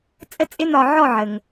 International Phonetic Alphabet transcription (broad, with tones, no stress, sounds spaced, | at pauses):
t͡sʼ ə˥ t͡sʼ ɪ˥ n̪ ɒ˧ ʕ ɔ˥˧ ʕ ə˧ ŋ